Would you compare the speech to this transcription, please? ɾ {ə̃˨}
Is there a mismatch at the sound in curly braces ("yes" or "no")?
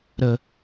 yes